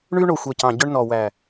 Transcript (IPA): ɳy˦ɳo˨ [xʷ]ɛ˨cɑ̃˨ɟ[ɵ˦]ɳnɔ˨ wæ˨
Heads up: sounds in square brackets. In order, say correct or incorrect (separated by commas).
correct, correct